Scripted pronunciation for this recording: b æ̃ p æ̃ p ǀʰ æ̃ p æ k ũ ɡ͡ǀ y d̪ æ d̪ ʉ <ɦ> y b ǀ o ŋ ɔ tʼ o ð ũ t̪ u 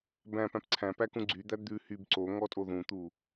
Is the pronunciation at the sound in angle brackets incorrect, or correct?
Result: incorrect